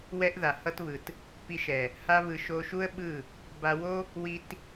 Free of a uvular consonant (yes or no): yes